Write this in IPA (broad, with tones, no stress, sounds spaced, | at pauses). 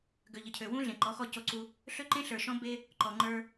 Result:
ɡ ø˨ ʎ ə˨ cʰ ø˨ w ũ˦ ɮ ẽ˨ ǃ ɔ˨˦ x ɔ˦˨ c o˦ ǀ u˦ | ɬ ø˦ ǃ ẽ˦ ɬ ə˞˨ ʃ ɔ̃˦ b e˦ | ǃ ɔ˨ ŋ͡ǃ ə˞˦